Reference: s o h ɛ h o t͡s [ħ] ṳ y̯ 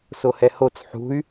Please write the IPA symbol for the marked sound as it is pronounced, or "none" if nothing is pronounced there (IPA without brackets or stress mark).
ħ